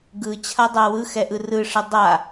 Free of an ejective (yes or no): yes